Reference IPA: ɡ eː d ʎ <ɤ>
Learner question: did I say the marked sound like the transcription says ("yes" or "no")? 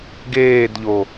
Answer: no